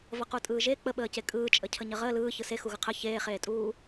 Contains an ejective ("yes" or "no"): yes